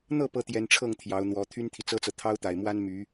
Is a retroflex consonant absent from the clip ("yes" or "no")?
no